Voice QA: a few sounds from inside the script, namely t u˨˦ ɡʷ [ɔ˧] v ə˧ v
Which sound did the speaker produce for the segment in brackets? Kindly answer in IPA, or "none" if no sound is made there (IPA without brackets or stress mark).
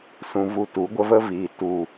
ə˧